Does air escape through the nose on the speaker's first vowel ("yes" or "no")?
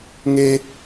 no